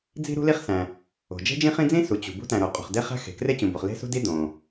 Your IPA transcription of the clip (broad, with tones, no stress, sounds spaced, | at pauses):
d͡z i̤˥ ɾ ṳ˥ l i˥ χ s æ̃˩ | o̤˩ d͡ʒ e̤˥ d͡ʒ ĩ˥ χ ĩ˥ d͡z ĩ˥ s u˩ t͡ɕ ṳ˩ b ṳ˥ t æ̃˩ ɾ o˩ qʼ o̤˩ χ d e˥ χ æ̤˥ x e̤˩ k r e˥ t͡ɕ ũ˩ b o˩ χ l e̤˥ s ṳ˥ d i˥ d õ˩